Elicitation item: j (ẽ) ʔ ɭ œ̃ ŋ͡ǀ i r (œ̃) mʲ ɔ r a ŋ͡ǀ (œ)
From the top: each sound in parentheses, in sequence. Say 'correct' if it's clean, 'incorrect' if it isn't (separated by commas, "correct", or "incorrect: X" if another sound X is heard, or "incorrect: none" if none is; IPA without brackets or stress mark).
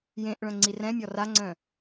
correct, incorrect: ɛ̃, incorrect: œ̃